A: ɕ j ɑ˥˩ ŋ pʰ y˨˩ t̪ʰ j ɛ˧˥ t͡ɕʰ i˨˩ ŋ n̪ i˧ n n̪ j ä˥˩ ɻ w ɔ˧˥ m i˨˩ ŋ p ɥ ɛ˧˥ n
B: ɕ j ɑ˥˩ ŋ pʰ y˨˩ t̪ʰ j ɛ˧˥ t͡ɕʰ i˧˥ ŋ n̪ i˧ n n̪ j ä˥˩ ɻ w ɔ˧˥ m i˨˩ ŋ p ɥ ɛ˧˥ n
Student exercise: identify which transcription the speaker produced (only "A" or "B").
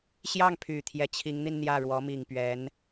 B